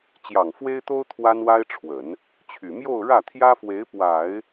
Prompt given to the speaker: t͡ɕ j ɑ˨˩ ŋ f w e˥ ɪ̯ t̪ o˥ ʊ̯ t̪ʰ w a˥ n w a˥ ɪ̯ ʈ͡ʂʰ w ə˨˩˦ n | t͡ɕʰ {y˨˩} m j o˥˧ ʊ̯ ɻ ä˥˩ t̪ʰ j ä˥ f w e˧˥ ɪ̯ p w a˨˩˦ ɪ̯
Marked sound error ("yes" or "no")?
no